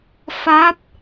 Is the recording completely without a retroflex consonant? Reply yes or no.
yes